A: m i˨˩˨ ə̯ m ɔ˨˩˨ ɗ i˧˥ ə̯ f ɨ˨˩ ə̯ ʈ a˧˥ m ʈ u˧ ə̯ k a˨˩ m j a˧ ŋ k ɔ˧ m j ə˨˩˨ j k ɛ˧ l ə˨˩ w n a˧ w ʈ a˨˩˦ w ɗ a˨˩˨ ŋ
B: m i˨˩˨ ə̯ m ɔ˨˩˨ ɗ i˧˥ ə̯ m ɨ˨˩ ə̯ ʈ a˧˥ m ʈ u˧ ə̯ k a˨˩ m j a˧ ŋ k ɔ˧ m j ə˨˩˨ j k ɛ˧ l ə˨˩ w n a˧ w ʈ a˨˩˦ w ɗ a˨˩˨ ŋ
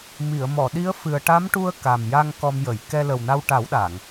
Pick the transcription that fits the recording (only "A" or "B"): A